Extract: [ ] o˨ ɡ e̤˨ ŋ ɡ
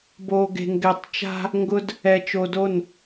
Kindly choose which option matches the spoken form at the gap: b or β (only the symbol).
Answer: b